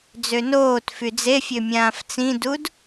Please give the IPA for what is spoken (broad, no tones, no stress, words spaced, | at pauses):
d͡zønoːtfy d͡zefʲø mʲãːft͡sĩdud